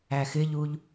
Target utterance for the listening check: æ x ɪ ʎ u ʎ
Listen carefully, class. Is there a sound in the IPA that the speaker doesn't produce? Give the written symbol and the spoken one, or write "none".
none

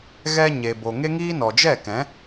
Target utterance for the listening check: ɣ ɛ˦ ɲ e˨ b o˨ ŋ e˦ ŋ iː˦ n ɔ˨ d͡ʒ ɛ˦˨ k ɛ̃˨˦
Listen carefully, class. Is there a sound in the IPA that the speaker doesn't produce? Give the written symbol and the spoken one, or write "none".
none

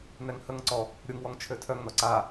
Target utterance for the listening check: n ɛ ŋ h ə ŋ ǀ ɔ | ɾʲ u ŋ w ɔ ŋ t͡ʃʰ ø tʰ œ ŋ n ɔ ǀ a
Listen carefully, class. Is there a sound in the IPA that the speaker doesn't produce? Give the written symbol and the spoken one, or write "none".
none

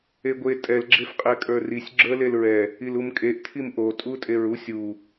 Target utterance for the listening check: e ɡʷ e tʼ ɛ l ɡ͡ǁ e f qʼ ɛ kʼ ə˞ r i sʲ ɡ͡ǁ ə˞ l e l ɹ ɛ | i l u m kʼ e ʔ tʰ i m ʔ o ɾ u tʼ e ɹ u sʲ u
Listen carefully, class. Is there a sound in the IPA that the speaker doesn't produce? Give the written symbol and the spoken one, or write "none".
ɾ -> tʼ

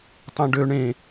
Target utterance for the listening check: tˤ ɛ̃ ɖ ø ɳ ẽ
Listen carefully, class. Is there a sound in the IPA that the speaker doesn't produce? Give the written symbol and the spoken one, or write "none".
none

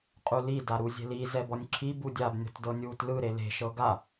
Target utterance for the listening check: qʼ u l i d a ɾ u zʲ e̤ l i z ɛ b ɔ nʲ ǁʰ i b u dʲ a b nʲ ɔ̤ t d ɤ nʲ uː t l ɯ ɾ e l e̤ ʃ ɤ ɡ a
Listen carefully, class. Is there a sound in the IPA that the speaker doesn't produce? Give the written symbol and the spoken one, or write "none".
none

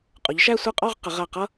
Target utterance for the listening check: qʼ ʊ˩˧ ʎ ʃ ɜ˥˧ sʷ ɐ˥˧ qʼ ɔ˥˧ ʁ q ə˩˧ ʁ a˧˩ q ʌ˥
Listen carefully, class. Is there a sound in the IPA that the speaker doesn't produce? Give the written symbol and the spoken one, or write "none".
ɜ˥˧ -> æ˥˧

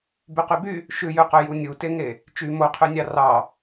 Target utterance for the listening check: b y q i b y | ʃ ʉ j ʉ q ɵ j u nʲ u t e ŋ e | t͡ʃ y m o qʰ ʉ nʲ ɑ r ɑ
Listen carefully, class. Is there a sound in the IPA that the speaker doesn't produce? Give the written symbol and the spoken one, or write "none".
i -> y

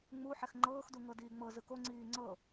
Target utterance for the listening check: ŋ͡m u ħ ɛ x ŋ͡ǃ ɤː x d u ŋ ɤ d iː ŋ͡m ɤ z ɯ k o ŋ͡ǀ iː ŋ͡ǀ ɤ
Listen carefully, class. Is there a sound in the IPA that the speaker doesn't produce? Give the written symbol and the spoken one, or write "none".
none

